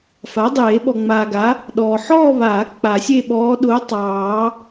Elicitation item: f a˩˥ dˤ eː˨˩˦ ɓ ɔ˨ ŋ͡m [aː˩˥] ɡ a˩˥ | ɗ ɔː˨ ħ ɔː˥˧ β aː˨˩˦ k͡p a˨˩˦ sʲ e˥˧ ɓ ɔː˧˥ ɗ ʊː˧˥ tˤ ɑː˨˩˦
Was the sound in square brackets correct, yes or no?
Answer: no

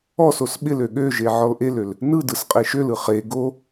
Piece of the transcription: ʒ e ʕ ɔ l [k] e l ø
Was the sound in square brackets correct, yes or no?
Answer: no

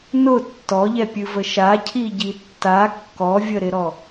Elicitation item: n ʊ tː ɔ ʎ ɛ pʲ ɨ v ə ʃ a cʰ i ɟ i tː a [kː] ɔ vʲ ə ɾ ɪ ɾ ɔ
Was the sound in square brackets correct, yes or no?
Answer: yes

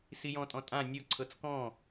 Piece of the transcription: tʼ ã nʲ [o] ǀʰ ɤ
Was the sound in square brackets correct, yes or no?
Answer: yes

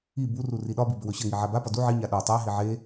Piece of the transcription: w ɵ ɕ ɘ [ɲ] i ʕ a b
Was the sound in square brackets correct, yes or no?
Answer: no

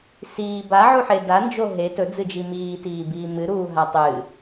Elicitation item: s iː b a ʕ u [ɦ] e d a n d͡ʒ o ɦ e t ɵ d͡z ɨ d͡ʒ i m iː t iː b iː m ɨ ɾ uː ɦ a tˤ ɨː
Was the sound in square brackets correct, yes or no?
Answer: no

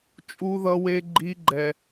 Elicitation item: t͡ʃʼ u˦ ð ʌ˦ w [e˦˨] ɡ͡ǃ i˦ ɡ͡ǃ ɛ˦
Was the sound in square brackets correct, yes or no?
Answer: no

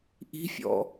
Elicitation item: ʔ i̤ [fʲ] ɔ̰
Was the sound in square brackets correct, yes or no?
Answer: yes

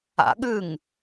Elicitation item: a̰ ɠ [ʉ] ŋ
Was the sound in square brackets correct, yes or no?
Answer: yes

